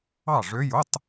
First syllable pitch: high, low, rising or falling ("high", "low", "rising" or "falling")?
falling